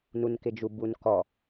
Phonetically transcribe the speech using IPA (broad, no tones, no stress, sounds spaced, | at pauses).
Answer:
n u n k ɪ d͡ʒ u b u n k ɔ